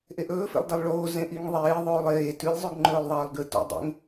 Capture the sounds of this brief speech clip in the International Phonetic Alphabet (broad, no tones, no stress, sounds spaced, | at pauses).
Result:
ʔ e ʔ ɵː f ḛ lˠ d ɐ lˠ ɭ oː z ẽ ʔ i ŋ ðˤ eː ðˤ oː lˠ eː t ʉ lʲ zˤ ʉ ɡ ŋ͡ǃ ɵː lˠ ðˤ ɐː lˠ ɡ ɨ t o̰ dˤ ḛ ŋ